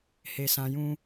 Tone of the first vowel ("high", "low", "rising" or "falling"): low